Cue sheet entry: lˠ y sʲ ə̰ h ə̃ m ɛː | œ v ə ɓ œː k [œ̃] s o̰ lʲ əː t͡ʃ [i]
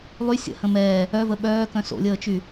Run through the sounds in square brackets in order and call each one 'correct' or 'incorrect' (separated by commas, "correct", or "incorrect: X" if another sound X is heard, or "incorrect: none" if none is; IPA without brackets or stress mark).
correct, incorrect: y